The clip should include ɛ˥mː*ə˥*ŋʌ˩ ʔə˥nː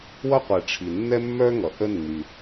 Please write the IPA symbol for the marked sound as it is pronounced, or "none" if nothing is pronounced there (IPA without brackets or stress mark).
œ˥